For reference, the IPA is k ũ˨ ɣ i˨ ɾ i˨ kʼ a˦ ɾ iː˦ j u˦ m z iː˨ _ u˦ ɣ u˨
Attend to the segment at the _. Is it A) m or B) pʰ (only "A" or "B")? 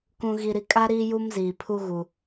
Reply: B